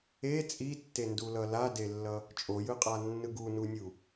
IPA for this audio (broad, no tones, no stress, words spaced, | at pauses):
e t͡sʼitːendulʌ ladelːʌ | t͡ʃʼojɯqʼanːɯ ɡununʲu